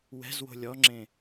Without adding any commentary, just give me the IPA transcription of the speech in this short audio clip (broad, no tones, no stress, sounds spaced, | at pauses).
w ɛ̤ z w o̤ lʲ ɔ ŋ͡ǁ ẽ